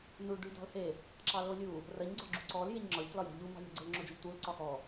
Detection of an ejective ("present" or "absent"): absent